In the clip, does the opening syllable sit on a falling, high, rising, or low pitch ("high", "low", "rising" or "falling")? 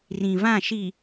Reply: low